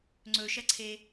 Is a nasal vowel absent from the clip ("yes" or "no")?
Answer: yes